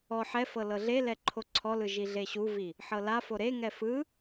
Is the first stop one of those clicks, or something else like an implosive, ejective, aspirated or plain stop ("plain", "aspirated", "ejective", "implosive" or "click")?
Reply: click